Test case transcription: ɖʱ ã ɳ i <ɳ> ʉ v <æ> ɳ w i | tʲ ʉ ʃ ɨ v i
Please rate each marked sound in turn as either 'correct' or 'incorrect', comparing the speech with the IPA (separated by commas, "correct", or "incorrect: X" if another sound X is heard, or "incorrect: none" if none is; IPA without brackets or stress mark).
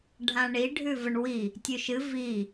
incorrect: ɖʱ, incorrect: ə